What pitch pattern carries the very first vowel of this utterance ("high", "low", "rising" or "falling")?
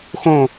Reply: falling